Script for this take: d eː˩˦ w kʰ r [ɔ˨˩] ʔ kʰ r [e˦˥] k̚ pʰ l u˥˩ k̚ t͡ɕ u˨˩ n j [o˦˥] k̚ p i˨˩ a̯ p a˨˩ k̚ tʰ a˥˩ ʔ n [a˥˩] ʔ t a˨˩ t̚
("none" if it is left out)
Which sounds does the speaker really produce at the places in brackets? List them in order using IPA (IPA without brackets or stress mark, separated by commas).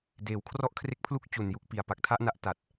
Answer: ɔ˥˩, e˥˩, u˦˥, a˥˩